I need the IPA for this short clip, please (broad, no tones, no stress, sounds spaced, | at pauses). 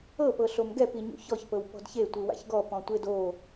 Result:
ɤ p ɤ ɬ o m ɡ ɛ p i ɲ ṵ ç ɔ ç p ɤ w p ɔ̤ d ç e tʷ ɯ w a̰ ç ɡ ɔ p ɔ̃ tʷ e d o